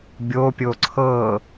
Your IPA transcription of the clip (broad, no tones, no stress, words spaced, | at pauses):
bʲopʲo ǀʰɤ